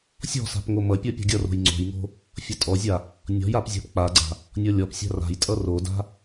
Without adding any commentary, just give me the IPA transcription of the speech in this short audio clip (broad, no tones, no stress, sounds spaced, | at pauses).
sʲ ɔ̤ s a̤ p ŋ o m ʌ pʲ ɔ pʲ ɔ̤ ɡʲ ʌ r o̤ j ŋ͡ǀ o̤ j ŋ o̤ | fʲ ʌ tʼ ɔ zʲ a | nʲ ɔ̤ j a p zʲ a̤ p k͡p a ɡ͡ǀ a̤ | nʲ ɔ lʲ ɔ p sʲ a̤ r a̤ j tʼ ʌ r o d a̤